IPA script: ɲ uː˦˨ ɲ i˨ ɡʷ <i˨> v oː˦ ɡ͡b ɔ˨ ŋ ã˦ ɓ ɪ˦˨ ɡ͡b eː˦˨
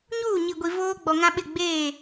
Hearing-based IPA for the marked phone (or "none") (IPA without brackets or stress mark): i˨